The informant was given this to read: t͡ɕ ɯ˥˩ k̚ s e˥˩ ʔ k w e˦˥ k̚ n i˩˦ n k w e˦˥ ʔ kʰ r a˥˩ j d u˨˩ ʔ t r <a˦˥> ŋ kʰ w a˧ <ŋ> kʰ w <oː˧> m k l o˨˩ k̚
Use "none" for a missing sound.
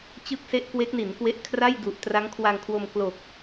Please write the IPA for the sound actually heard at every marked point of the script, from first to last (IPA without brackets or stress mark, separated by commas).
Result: a˦˥, ŋ, o˧